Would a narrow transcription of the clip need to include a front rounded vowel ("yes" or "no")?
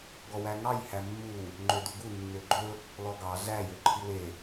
yes